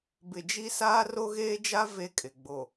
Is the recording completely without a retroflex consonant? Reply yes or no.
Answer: yes